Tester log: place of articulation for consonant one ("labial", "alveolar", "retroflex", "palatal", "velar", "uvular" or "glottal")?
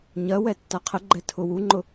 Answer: palatal